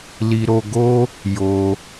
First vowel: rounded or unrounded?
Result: unrounded